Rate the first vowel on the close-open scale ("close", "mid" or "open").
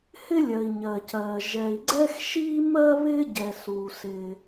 close